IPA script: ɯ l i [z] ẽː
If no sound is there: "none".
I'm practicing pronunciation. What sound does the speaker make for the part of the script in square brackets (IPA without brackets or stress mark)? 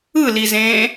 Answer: z